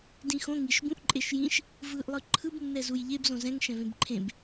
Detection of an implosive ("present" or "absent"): absent